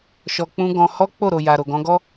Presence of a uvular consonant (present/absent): absent